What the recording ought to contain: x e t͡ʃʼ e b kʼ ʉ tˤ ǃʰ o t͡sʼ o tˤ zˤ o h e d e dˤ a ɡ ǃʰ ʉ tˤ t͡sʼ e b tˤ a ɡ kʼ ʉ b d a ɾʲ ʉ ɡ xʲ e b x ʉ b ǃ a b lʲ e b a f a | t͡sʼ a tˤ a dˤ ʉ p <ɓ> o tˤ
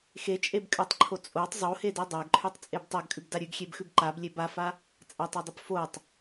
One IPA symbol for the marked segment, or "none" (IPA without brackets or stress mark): f